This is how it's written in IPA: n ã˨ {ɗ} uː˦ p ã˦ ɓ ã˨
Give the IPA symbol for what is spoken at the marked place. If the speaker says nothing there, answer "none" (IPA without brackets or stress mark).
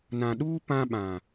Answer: ɗ